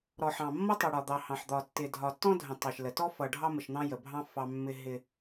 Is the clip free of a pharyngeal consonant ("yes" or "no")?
no